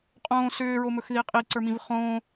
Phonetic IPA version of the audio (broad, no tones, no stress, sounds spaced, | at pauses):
qʼ õː s ʏː ɹ o m ɵ x ð i qʼ i ǀ ə˞ m ĩ v χ õː